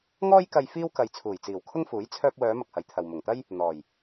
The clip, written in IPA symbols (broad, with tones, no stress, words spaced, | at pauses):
ŋɔː˥jkɐ˧j fiː˥wkɐ˨j t͡sʰuː˨˩jt͡siː˨˩w kʰʊ˥ŋfuː˨˥j t͡sʰœː˧p̚wœː˨˧ mɐ˨k̚hɐ˨jt̪ʰɐ˨w mʊ˨˩ŋt̪ɐ˥j | n̪ɔː˨˩j